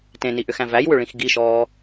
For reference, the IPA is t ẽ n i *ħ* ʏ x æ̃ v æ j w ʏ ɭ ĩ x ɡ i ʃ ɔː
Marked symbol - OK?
no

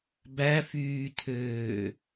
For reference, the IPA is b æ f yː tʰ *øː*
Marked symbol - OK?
yes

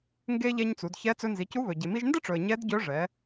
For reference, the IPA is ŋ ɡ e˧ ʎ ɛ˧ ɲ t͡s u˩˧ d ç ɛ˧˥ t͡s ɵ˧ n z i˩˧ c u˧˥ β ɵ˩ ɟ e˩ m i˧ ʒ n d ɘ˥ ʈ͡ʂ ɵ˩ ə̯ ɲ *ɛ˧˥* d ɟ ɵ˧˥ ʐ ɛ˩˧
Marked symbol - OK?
yes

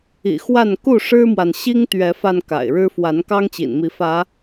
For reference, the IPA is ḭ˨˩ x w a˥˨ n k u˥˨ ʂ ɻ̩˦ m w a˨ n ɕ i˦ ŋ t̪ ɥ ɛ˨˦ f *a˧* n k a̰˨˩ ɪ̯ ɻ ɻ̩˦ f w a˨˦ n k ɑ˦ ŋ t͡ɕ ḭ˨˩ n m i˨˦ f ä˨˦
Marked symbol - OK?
yes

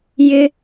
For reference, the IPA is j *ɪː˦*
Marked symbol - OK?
yes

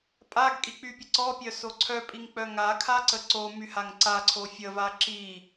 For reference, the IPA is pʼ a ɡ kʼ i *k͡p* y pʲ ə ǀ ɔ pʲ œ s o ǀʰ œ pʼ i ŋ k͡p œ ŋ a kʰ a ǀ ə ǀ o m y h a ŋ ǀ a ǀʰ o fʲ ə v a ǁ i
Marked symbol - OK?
yes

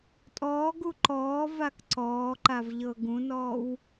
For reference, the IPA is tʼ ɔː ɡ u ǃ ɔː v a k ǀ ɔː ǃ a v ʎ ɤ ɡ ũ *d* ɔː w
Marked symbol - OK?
no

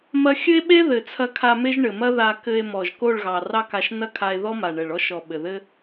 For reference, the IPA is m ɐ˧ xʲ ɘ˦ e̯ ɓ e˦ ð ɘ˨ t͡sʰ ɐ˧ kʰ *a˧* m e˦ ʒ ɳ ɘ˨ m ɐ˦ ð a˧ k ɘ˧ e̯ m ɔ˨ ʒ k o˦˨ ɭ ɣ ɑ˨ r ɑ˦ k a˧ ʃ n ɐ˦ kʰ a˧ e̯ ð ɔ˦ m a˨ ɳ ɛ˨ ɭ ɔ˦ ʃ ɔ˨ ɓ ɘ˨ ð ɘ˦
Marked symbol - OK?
yes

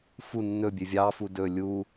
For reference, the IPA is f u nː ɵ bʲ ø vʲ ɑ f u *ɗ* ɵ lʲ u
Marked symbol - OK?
no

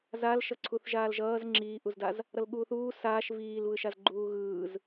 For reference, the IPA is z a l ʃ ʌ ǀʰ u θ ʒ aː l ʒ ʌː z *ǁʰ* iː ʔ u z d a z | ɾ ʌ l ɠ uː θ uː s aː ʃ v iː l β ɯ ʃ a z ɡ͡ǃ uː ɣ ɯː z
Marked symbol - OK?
no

